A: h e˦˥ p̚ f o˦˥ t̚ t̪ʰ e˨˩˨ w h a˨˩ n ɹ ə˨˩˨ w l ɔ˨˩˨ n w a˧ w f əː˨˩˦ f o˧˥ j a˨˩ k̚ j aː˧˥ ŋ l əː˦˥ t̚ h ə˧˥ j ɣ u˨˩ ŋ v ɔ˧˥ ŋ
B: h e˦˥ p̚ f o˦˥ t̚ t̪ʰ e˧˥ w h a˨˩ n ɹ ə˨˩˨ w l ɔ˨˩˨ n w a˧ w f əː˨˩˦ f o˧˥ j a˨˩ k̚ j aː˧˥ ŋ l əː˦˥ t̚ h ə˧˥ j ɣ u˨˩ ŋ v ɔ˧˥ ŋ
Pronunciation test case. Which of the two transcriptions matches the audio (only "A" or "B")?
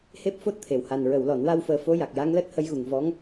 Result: A